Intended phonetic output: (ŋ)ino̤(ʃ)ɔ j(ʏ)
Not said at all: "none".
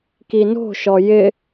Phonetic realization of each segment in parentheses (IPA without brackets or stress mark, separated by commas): k, ʃ, ɪ